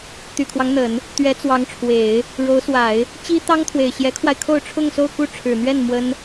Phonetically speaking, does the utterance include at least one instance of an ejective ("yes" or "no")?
no